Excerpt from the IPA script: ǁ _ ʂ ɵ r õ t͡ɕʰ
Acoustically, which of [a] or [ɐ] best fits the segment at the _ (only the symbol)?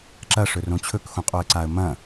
ɐ